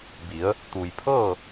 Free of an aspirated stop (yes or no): no